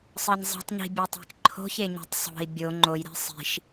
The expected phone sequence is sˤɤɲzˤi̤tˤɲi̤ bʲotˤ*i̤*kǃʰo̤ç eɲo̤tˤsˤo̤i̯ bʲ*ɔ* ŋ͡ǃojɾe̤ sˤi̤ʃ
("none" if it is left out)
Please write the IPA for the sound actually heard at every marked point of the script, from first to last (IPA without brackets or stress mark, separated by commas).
e̤, o